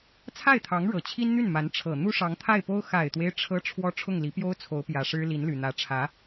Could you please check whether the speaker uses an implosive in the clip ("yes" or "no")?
no